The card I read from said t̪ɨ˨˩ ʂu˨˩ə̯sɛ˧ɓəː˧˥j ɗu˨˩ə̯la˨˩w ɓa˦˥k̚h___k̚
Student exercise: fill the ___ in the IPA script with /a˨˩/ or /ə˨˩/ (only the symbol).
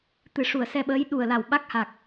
a˨˩